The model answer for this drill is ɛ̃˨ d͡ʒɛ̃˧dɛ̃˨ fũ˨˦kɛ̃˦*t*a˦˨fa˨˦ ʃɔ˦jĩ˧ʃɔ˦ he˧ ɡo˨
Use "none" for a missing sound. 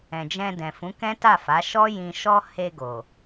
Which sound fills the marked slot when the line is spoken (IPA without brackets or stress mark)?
t